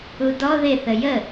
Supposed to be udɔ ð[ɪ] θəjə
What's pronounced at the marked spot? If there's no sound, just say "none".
ɪ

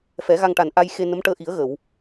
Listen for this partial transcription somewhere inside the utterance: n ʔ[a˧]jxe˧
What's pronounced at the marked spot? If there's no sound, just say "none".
a˧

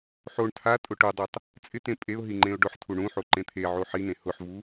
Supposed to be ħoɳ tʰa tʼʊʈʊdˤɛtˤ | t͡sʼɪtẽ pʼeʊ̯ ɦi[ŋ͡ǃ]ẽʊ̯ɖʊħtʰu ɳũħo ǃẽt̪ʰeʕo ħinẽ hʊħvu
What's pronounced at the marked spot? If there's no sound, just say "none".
ŋ͡ǃ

